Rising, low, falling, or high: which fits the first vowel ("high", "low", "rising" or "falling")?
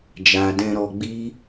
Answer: low